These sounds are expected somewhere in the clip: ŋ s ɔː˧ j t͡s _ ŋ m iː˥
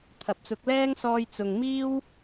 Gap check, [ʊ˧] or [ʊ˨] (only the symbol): ʊ˨